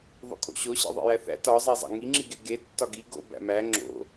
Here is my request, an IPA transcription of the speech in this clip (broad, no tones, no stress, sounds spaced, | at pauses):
ðˤ o̰ kʼ o̰ ɕ o ɕ ḛ ðˤ ḛ j æ θ æ̰ t ɒ zˤ e zˤ æ̰ ŋ i ŋ͡ǁ i ɡ e ɡ e tː ɒ ɡ i ɡ o̰ b æ̰ m æ ŋ͡ǁ o̰